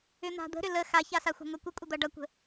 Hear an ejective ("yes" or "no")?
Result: yes